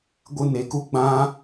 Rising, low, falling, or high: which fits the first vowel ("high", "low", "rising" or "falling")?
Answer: high